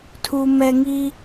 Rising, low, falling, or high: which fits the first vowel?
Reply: low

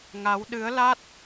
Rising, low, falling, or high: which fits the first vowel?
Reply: rising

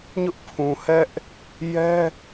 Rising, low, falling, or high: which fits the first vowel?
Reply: high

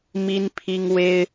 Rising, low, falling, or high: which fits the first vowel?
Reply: high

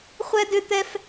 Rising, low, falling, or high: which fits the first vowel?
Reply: high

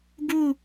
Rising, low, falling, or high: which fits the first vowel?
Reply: falling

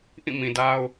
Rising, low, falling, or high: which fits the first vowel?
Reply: falling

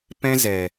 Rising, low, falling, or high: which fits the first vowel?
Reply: high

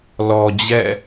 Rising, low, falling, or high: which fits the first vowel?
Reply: low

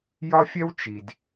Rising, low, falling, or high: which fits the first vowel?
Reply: high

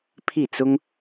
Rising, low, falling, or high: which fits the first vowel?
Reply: falling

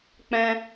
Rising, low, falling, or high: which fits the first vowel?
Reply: high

